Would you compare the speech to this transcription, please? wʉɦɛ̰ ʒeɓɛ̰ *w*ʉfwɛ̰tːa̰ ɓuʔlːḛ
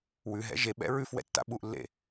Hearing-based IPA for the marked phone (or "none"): ɹ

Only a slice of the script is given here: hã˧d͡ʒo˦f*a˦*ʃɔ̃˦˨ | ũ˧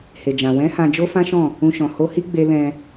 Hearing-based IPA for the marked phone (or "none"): ã˦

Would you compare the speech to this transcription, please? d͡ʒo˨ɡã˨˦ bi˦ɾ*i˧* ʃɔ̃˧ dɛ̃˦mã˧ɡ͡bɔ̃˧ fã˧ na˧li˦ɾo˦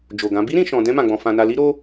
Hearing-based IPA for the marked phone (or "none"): ĩ˧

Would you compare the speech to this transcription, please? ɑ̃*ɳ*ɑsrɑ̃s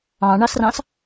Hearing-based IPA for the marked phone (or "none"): ɳ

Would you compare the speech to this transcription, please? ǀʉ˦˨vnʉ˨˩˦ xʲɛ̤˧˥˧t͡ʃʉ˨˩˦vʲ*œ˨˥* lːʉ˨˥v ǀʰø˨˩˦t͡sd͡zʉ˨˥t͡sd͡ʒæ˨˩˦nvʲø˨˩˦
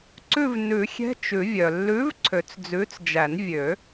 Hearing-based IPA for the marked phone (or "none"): œ˩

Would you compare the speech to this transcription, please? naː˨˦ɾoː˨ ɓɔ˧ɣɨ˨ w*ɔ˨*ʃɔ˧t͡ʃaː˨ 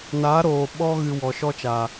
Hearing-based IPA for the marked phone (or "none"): ɔ˨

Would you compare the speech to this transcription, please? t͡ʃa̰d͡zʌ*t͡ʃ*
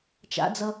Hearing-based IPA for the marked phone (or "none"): none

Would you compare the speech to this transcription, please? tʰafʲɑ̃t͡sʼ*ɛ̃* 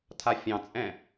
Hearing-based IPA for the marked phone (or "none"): ɛ̃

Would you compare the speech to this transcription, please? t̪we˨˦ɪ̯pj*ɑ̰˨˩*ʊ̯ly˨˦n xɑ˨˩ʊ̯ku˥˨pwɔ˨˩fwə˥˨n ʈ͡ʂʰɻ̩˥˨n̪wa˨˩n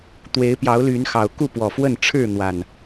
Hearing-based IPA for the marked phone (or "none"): ɑ˨˦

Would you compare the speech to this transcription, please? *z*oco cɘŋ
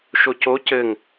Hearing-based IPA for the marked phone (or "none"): ʃ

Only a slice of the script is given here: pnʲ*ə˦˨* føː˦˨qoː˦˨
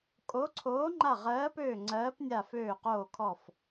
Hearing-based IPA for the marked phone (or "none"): a˦˨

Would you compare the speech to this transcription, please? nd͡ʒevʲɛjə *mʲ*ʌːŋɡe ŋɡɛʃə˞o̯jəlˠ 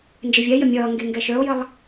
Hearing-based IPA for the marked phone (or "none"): mʲ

